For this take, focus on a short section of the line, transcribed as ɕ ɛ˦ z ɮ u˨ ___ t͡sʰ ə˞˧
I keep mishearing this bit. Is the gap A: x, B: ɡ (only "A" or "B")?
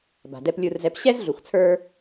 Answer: A